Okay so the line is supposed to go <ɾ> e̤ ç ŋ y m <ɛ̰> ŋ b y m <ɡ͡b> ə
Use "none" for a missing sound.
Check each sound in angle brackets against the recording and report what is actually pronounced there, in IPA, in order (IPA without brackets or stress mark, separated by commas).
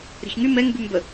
ɾ, ɛ, b